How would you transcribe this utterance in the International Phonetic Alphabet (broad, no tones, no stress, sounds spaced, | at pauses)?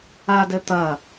a d ɘ t̪ ɐ